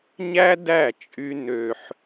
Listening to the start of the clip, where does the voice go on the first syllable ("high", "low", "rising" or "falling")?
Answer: high